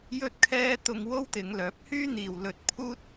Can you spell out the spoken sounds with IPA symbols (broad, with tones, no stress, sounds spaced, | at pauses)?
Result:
j ɵ˥ t̚ kʰ ɛː˥ t̪ ʊ˧ ŋ w o˥ w t̪ ɪ˨˧ ŋ l œː˨˥ p̚ h yː˥ n̪ iː˨ w l ɵ˧ t̚ pʰ uː˥ t̚